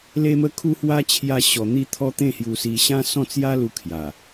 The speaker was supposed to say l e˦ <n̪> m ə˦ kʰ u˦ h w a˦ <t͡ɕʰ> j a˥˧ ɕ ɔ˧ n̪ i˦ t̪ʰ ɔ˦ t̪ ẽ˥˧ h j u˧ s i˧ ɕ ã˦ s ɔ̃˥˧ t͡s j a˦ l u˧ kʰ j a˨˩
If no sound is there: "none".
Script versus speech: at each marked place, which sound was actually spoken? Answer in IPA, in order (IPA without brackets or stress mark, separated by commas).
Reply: none, t͡ɕʰ